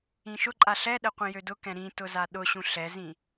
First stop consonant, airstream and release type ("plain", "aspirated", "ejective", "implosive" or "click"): click